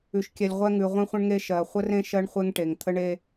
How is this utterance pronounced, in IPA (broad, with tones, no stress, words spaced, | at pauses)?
ʉ˩ʃkʲɛ˩lʲ ʁʷɛ˧ŋʉ˩ ʁʷẽ˧χʷə̃˧ɳŋe˧ ʃɜ˩ χʷə˧rẽ˧ ʃɜ˧ɳχʷe˧ŋʈe˩ŋ t̪ʰə˧ɳe˧